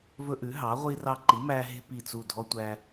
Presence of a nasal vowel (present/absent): absent